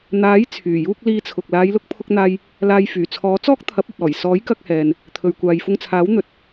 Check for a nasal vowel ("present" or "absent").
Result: absent